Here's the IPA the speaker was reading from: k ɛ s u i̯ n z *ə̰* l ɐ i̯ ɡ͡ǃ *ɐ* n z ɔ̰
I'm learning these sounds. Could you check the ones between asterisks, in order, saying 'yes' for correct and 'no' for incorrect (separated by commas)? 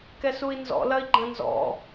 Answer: no, no